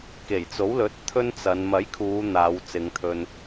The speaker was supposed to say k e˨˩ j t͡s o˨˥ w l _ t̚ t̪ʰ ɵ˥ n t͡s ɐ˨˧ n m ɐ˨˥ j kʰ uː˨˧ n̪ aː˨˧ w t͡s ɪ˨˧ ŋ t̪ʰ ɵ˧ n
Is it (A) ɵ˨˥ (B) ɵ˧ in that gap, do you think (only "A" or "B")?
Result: A